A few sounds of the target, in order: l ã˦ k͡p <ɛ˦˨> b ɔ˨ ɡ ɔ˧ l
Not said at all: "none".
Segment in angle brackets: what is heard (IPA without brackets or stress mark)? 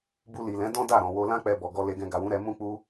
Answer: ɛ˧